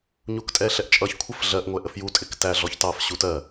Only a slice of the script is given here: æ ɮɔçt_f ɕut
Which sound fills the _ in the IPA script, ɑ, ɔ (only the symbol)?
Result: ɑ